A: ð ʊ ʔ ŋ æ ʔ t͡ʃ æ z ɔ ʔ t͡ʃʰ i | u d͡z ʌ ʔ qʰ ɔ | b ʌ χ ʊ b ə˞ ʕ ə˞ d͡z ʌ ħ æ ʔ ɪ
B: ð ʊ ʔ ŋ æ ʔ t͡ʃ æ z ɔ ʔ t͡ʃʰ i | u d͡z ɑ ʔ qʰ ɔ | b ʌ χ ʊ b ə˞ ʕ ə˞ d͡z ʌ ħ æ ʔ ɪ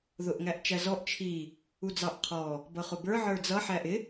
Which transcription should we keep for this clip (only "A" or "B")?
B